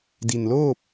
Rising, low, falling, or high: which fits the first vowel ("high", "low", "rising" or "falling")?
low